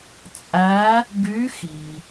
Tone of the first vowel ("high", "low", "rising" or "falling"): rising